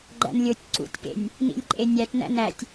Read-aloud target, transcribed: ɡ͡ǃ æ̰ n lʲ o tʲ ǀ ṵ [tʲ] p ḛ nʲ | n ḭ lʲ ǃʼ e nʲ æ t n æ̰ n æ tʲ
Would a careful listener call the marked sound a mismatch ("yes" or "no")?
no